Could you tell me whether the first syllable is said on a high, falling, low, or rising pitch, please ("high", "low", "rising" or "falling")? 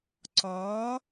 rising